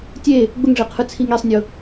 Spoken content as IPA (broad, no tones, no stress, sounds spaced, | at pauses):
tʲ e | ɡ͡b ʊ ŋ ʐ e qʰ ɯ t͡sʰ i ŋ e sˤ nʲ ʊ